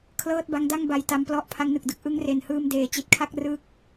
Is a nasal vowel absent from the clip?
yes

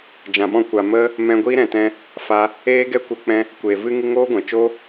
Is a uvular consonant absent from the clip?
yes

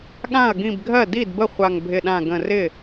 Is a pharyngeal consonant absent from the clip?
yes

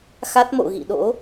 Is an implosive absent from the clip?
no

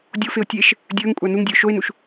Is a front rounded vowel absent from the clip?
yes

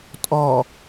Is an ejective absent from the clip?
no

